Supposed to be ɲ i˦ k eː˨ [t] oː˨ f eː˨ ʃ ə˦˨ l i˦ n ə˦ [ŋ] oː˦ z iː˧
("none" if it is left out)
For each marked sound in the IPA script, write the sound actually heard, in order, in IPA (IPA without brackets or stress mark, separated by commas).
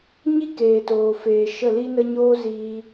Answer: t, ɲ